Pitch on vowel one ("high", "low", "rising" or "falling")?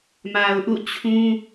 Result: low